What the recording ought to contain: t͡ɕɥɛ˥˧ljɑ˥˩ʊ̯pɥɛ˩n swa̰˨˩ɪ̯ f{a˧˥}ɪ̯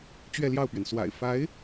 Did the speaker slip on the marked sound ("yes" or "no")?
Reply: no